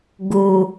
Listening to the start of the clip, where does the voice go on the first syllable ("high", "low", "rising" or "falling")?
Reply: low